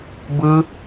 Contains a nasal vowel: no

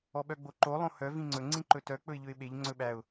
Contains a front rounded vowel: yes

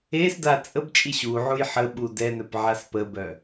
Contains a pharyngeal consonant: yes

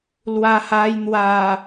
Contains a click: no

